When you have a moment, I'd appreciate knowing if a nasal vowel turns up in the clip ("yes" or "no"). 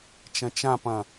yes